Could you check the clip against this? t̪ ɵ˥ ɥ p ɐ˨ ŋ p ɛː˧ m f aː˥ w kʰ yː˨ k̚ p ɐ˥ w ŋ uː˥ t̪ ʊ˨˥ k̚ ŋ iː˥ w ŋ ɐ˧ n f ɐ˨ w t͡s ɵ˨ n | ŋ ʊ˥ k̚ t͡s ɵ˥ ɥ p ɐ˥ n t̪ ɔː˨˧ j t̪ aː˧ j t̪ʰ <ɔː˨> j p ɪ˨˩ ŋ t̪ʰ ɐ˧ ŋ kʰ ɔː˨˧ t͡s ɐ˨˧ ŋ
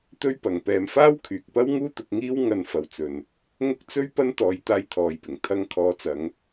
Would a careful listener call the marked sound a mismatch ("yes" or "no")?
no